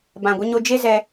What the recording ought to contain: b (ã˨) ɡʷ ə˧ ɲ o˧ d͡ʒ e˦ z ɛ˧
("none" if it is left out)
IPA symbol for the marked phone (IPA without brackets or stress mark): ã˨